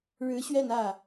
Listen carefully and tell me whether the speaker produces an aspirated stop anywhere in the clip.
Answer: no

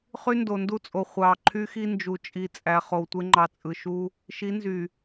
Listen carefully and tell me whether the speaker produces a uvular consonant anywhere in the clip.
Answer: yes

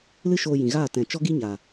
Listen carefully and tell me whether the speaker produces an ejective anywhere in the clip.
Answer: no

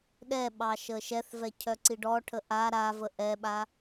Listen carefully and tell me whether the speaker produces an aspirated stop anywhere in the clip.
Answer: yes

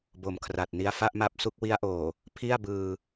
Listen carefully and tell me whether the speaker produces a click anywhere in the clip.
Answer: no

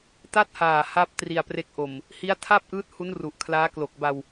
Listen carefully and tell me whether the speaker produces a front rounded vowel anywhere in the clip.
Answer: no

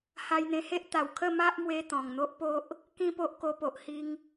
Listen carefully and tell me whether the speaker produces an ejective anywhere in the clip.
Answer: no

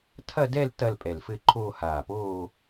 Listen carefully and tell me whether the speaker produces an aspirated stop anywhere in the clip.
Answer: yes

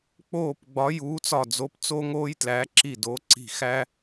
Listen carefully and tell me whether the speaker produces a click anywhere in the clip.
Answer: yes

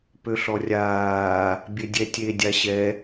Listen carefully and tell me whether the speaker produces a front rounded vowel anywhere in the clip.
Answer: yes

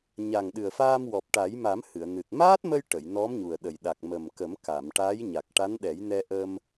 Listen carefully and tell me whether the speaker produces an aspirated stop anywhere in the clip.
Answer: no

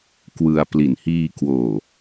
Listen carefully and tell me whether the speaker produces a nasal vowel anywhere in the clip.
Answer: no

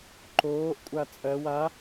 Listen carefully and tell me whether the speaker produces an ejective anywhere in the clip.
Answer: yes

